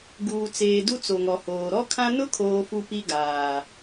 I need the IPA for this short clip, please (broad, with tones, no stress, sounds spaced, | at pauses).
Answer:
ɡ uː˨ t͡s eː˨ d u˦ t͡s o˨ ŋ ɔ˨ h oː˨ ɾ ɔ˦ kʰ ã˦ n ʊ˦ kʰ oː˨ f u˨ p i˦ ɡ aː˨